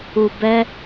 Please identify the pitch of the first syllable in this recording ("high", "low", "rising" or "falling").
low